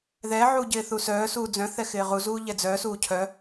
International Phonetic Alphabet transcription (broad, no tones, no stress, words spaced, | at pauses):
ðɛʕuː ɟɪːθusœːsuː d͡zœ̃θɛ xɪːʁuzuː ʎɛd͡zœːsuː cʰœ